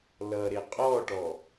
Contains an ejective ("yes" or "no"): yes